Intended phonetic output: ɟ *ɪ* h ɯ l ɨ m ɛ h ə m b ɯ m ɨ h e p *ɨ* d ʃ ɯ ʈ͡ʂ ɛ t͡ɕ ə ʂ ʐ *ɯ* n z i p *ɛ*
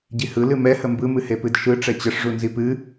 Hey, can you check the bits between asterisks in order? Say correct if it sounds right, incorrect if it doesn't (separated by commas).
incorrect, correct, incorrect, incorrect